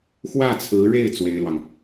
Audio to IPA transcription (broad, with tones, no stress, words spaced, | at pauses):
xwä˥˩t͡sʰɹ̩˧˥ɻe˥˩ɪ̯ t͡swe˥ɪ̯lwɑ˨ŋ